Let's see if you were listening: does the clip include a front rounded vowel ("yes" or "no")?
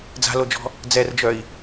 yes